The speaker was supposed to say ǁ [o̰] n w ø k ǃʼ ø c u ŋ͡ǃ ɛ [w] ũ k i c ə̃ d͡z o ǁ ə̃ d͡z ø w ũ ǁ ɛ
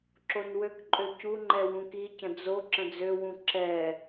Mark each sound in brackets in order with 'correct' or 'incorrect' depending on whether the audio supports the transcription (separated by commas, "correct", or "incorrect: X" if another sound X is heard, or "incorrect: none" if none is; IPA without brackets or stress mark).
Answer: incorrect: o, correct